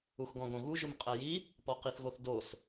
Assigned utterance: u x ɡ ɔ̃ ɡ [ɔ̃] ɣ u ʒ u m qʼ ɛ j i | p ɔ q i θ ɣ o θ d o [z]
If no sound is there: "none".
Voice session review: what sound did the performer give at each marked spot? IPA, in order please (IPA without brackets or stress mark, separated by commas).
õ, s